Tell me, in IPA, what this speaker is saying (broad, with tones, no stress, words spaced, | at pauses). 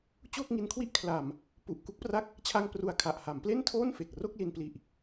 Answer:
t͡ɕoː˥˩k̚ŋi˧nkʰwi˥˩ʔ kʰla˨˩m | pu˨˩ʔku˦˥k̚pra˦˥k̚ | t͡ɕʰa˧ŋ pru˧a̯kʰa˨˩ʔ ha˩˦mple˥˩ntʰoː˥˩n fe˨˩k̚ro˥˩k̚ li˧npli˨˩ʔ